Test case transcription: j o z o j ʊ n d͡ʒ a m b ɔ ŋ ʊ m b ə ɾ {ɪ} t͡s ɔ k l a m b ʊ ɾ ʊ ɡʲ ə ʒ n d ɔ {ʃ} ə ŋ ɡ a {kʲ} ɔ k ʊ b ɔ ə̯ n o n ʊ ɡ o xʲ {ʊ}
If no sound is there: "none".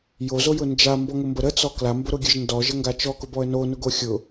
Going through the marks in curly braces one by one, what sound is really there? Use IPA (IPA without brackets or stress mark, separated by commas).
ə, ʒ, t͡ʃ, ʊ